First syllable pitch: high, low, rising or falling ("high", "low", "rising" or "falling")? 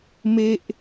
high